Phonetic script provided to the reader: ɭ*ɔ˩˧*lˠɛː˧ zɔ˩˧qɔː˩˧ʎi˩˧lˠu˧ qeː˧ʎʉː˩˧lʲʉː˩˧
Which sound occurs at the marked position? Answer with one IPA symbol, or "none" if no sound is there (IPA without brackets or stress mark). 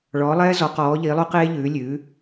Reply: ɔː˩˧